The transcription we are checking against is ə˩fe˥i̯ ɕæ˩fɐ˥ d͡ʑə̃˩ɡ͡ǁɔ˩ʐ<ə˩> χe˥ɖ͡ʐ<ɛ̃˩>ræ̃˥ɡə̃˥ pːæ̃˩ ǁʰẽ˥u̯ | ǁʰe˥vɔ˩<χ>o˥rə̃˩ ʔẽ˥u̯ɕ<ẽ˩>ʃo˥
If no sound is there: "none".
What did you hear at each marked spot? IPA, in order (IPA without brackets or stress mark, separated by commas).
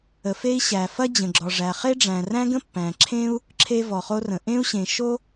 æ˩, æ̃˩, χ, ẽ˩